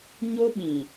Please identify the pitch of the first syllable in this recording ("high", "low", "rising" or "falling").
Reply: high